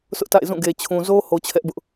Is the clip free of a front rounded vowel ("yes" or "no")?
yes